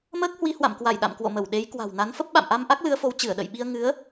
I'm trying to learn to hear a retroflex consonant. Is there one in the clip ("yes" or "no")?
no